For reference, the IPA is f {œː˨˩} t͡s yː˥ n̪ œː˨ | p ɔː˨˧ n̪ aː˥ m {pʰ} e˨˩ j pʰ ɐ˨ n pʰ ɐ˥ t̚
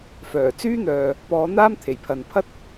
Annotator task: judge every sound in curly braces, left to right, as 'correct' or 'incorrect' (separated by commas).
correct, incorrect